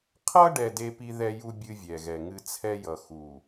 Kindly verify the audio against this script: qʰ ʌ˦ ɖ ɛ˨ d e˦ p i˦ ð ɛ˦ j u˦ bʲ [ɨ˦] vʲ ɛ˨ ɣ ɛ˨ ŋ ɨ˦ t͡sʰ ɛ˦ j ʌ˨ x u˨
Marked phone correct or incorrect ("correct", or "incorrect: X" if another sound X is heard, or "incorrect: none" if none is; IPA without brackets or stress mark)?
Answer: correct